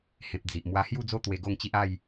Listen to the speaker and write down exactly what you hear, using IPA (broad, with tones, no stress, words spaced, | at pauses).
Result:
hẽ˨p̚ d͡zi˨ʔ mwa˧hju˥˧d͡zo˦ t̪we˧ɡo˥˧ŋt͡ɕi˦ʔ a˥˧j